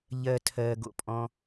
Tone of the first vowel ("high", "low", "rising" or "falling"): low